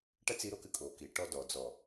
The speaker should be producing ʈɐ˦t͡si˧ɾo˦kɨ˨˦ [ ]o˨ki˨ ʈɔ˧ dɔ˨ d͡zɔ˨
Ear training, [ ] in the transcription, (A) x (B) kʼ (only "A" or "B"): B